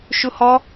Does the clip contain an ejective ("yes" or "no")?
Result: no